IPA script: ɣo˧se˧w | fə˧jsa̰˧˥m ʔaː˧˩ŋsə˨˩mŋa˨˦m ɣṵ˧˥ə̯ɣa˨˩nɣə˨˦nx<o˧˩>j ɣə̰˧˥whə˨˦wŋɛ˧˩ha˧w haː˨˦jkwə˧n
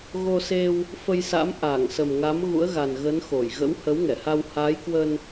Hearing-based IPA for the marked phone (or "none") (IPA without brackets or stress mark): o˧˩